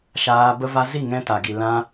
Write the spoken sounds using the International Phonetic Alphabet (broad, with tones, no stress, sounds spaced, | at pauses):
ʃ aː˧ b ə˧ v a˧ z i˦˨ ŋ ɛ̃˧ t a˨ ɡ i˨ l ã˧